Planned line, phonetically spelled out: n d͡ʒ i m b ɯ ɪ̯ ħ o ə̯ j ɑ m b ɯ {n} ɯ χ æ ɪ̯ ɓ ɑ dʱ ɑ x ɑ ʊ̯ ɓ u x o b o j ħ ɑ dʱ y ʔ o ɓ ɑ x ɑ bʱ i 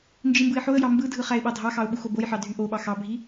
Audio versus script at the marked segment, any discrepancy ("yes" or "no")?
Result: yes